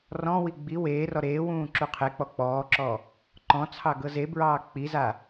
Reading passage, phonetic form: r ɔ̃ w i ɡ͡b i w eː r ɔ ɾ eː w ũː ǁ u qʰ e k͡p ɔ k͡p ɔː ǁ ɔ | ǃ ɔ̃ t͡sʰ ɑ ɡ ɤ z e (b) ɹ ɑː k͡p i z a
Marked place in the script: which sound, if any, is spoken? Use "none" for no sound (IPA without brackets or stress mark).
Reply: b